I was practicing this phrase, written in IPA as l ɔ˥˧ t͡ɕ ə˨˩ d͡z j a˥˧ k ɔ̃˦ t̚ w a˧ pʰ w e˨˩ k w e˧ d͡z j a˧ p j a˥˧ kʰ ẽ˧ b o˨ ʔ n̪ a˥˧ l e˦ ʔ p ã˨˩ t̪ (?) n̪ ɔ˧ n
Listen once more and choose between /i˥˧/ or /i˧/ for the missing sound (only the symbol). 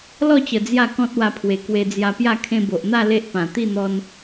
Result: i˥˧